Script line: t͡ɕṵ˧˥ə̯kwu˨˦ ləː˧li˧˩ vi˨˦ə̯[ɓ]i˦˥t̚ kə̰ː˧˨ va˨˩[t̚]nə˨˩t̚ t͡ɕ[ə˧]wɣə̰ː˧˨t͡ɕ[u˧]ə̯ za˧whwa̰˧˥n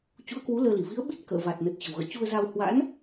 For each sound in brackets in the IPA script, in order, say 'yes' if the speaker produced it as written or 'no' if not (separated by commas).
yes, yes, no, yes